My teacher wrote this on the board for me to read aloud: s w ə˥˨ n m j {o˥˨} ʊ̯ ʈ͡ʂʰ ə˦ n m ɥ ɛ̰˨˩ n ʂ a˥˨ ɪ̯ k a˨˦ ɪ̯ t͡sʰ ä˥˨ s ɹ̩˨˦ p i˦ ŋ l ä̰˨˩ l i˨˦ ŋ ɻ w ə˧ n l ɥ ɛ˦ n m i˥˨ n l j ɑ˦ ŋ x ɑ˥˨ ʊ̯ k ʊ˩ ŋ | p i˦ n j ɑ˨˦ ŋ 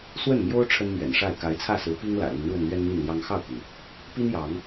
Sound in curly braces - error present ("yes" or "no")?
yes